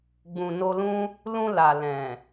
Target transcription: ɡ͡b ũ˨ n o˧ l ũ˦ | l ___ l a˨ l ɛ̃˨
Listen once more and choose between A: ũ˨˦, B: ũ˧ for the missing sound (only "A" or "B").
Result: B